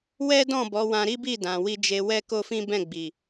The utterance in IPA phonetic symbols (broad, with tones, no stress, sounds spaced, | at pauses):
w ɛ˦ d ɔ̃˦˨ b ɔ˨˦ w ã˧ ɾ i˦ b i˦˨ d ã˨ w i˧ d͡ʒ e˧ w ɛ˦ k o˦ f ĩ˦ b ɛ̃˦˨ ɡ͡b i˨